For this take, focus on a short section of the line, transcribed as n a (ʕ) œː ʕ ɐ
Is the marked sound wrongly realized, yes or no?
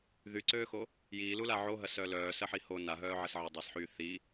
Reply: yes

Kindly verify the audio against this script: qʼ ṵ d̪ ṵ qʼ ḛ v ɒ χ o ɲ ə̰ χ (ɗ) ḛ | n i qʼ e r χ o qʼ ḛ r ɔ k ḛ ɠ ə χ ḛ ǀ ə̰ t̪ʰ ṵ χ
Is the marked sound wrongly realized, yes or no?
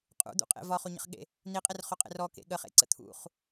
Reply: yes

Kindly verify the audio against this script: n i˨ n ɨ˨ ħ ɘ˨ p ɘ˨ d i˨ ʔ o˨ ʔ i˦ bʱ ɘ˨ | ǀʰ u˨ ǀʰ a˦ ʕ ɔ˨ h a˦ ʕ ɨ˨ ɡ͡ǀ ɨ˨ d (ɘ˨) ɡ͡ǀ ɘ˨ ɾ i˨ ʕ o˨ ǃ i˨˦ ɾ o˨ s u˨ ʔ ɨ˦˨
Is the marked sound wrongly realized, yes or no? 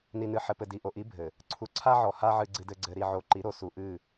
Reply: no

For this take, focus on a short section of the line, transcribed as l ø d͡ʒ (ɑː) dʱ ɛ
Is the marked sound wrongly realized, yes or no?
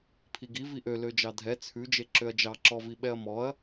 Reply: yes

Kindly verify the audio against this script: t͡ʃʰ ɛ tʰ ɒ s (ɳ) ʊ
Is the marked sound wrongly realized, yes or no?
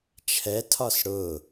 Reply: yes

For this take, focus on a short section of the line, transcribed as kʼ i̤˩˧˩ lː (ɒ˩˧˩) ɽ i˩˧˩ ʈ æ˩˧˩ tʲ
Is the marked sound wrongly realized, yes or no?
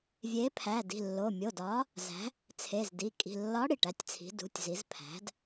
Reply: yes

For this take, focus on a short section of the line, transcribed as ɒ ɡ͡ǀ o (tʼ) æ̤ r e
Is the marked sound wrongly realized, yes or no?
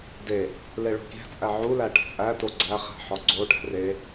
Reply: yes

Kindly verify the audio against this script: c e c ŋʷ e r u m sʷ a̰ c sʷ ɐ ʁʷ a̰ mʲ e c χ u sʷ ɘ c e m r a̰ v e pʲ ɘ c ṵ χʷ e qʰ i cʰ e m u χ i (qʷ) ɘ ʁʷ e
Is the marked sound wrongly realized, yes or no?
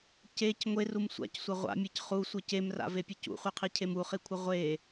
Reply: yes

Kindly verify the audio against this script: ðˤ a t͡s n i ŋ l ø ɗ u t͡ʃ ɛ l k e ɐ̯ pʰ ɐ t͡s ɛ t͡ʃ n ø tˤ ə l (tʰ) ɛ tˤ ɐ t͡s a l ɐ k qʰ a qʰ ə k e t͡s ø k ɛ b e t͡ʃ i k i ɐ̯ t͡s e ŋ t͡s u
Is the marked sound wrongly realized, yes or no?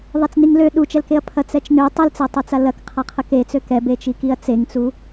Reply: yes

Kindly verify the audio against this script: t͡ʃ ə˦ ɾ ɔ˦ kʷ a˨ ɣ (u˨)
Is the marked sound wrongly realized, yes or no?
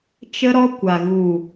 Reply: no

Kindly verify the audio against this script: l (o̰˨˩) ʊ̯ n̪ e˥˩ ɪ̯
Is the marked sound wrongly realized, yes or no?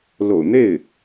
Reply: no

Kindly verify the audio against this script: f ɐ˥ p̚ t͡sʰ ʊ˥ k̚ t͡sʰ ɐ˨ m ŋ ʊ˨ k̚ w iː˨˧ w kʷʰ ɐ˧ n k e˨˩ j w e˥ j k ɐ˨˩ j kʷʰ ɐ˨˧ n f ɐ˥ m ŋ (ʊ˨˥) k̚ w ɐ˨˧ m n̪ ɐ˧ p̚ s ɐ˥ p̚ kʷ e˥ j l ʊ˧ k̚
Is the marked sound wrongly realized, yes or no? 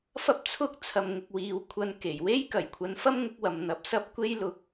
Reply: no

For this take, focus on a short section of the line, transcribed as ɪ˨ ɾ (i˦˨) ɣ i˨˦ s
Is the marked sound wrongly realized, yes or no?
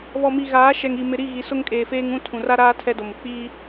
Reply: no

